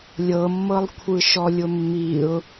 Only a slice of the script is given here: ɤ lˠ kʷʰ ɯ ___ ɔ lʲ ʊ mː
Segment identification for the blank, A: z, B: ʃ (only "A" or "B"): B